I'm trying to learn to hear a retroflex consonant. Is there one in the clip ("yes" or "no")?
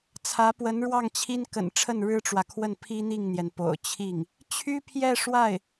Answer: yes